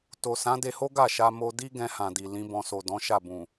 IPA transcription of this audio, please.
t o˨ s ã˨˦ d e˧ h o˦ ɡ a˦˨ ʃ a˧ m o˧ d i˦ ɡ ɛ̃˧ h ã˨ d i˨ l ĩ˨˦ b ɔ̃˧ s o˨ d ɔ̃˨˦ ʃ a˦˨ b ũ˨

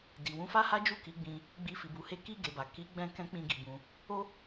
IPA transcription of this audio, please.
d i˨ w ũ˧ f a˦ h a˦ d͡ʒ u˦˨ k i˨˦ ɡ͡b ĩ˧ | ɡ͡b i˧ f i˨ b u˨˦ h e˦ k i˦˨ ɡ e˨ b a˨ k i˨˦ ɡ͡b ɛ̃˧ k ɛ̃˦ k͡p ĩ˦˨ ɡ i˨ b ũ˧ | o˦

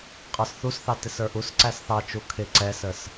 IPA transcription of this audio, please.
qʼ ə˞ s θ u s θ ɑ t ɪ s ə˞ ʔ u s ǀ æ s θ ɑ t͡ʃ u kʰ ɪ ǀ ɛ s ə s

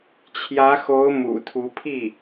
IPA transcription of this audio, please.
t͡ɕʰ j ä˧˥ x o˧˥ ʊ̯ m ṵ˨˩ t̪ʰ u˧˥ pʰ i˥˩

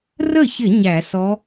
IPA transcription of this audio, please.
r ə˥˩ ç ɪ˧˩˧ ɲ æ˧˩˧ s ɔ˧˥

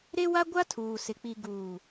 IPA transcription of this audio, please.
ɾ e˦ w a˦ ɡʷ a˦ tʰ uː˨ s ɪ˨ k͡p i˨ ɡ uː˨

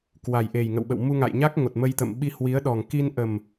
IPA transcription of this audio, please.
k w a˨˩ j ʔ e˨˩ j ŋ ə̰˧˨ w ɓ ə̰˧˨ w m u˧ ŋ a̰˧˨ j ɲ a˦˥ k̚ ŋ o˨˩ t̚ m ə˧ j t̪ ə̰˧˨ m ɓ i˧ h w i˨˦ ə̯ ɗ ɔ˨˩ ŋ k i˧ n ʔ ə˨˩ m

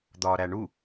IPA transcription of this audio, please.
d̪ ɒː ɾ æ ɳ u

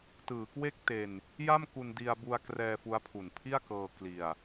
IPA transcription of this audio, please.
t ɯː˩˦ k w e˥˩ k̚ t e˧ n | j a˥˩ m k u˧ n d i˧ a̯ b u˧ a̯ k r ɛː˧ f u˦˥ a̯ pʰ u˨˩ n pʰ i˥˩ a̯ k ɤː˧ k l i˧ a̯

